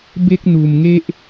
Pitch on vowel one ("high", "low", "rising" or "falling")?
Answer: high